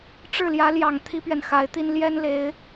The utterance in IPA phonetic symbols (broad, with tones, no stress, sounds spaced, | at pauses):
ʈ͡ʂ ɻ̩˥˩ l j ä˧˥ l j ɑ˨˩ ŋ t̪ʰ i˥ p ɥ ɛ˨ n x a˧˥ ɪ̯ t̪ i˥ n l j ɛ˥ n l e˧˥ ɪ̯